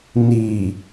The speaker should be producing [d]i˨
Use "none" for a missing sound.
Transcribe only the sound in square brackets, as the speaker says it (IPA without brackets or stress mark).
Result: n